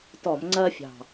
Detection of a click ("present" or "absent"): present